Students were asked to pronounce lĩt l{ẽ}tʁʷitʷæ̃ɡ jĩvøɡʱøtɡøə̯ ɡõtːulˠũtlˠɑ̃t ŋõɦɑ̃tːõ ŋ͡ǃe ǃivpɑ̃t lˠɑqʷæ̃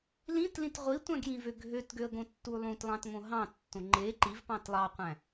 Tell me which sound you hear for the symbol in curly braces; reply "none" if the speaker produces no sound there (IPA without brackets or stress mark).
ĩ